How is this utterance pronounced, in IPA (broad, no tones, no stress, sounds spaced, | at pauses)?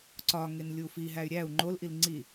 ǀ ɒ ŋ e n lʲ u f i ɦ æ y̯ ɾʲ æ u̯ ŋ͡ǃ o l ʔ i l ŋ͡ǀ i